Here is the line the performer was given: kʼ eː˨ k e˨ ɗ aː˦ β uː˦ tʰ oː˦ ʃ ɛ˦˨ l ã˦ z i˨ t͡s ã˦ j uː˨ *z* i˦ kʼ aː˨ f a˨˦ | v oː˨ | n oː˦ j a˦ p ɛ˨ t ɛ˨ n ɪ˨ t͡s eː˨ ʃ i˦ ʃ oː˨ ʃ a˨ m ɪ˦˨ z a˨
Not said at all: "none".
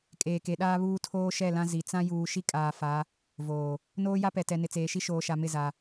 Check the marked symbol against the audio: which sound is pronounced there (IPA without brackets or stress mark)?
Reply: ʃ